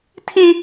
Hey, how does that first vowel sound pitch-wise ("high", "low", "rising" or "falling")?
high